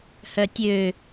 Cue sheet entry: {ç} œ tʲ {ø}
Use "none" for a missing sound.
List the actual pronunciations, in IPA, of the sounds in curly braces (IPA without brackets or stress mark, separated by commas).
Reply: h, ø